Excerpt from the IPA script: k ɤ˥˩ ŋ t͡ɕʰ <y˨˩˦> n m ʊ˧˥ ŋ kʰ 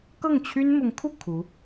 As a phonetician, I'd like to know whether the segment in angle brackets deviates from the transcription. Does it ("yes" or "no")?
yes